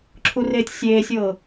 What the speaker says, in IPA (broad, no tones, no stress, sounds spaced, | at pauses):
ǁʰ u r eː tʲ sʲ eː sʲ ɤː